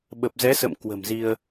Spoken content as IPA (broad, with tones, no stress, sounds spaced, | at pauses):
ɓ ə˨˩ p̚ z ɛ˨˦ s ə̰˧˨ m k w ə̤˨˩ m z i˧ ə̯